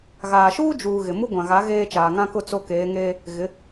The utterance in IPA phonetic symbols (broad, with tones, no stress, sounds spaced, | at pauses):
ɣ aː˨ ʃ uː˦ d͡ʒ uː˨ ɣ ɪ˨ m u˦ ɡʷ ã˨ ɣ a˨˦ ɣ eː˦ t͡ʃ aː˨ ŋ ã˦ k ʊ˦ t͡s o˦ k eː˨˦ ŋ eː˦ | ɣ ɪ˨˦